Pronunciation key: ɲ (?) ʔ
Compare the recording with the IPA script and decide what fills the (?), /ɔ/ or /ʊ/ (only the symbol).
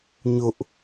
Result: ʊ